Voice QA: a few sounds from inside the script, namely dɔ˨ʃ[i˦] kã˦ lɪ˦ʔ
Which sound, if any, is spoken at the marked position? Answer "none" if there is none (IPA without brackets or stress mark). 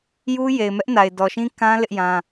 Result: ĩ˦